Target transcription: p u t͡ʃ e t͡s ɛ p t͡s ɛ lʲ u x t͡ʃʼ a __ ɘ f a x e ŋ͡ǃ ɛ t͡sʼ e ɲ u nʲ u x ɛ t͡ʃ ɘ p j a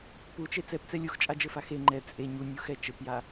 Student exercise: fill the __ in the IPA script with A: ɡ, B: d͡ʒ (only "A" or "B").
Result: B